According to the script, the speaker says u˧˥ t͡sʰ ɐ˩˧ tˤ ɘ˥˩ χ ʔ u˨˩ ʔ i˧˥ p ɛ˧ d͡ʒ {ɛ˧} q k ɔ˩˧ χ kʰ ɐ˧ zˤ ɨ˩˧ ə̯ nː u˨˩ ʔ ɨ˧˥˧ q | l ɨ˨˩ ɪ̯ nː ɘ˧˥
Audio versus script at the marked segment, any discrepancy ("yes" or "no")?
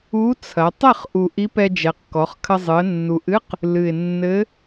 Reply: yes